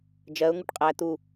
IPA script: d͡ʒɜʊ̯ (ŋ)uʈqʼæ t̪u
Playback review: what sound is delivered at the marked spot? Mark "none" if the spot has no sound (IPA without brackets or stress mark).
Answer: ŋ